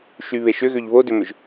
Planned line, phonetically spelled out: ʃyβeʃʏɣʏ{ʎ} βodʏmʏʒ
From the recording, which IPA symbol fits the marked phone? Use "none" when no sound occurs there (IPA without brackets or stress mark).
ʎ